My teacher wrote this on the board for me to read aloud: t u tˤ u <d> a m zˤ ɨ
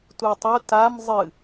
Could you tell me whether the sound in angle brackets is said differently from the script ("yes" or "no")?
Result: yes